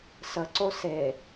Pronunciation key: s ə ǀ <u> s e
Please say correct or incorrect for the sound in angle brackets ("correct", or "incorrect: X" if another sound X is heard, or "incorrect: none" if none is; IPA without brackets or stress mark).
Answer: incorrect: o